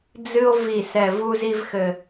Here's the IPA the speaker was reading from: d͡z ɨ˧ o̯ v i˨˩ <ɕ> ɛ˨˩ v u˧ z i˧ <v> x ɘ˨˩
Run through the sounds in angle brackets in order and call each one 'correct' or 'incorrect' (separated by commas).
incorrect, correct